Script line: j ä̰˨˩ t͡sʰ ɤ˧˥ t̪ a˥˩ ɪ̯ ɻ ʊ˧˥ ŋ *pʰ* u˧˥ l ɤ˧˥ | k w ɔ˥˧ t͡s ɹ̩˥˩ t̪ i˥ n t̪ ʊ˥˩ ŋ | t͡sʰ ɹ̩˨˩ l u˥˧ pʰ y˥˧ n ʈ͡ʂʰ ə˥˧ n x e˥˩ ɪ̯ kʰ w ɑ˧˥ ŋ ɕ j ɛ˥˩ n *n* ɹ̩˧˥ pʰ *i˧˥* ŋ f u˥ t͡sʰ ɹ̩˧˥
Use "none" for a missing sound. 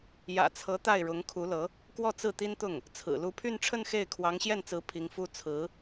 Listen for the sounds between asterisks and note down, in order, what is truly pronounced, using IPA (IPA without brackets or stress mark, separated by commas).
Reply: kʰ, t͡s, i˧˥